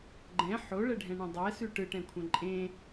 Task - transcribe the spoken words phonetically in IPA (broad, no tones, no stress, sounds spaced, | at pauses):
ɡ͡ǃ ɛ̃ ħ o ɭ ɛ ɖʱ ɛ̃ ɳ ẽ dˤ ɛ s ʉ ʈ ɯ ʈ ɛ̃ kʷʰ ɛ̃ ǃʼ ẽ